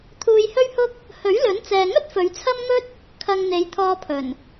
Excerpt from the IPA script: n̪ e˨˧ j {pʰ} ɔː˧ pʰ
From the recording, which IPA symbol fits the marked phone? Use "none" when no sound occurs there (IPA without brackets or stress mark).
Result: t̪ʰ